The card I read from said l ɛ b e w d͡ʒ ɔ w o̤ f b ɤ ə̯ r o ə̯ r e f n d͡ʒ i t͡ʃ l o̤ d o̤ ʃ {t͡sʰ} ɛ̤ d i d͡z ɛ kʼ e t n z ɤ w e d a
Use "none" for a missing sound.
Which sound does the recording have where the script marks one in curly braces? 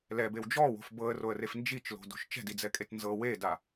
t͡ʃ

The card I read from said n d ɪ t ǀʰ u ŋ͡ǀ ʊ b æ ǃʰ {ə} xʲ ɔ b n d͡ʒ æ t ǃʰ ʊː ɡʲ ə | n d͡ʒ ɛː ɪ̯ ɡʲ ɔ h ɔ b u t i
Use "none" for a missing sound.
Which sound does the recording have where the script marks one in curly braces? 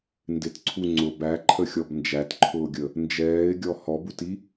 ə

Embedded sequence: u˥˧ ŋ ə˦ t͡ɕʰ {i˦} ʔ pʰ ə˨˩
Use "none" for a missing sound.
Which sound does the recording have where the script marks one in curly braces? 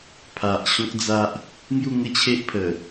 e˦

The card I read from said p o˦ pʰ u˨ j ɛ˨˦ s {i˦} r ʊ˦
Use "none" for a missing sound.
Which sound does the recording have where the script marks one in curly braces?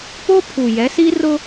i˦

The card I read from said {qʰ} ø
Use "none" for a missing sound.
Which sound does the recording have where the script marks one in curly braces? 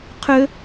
qʰ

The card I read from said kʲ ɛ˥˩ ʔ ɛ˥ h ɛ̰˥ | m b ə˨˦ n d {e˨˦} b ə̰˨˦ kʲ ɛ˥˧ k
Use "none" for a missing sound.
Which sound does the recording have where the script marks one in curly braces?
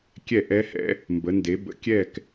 e˨˦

